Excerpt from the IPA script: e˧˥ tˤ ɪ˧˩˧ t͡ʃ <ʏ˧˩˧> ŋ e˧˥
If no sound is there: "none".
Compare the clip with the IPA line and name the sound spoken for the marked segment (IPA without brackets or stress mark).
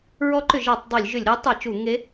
u˧˩˧